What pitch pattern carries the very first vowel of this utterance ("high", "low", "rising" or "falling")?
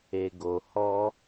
low